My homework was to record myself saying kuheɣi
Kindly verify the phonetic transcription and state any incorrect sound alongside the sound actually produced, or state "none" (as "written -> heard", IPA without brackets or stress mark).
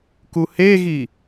none